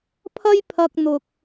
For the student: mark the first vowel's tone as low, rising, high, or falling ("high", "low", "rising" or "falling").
high